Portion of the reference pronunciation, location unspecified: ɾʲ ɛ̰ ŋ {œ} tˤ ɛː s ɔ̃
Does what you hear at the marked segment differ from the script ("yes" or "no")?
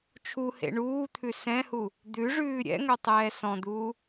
no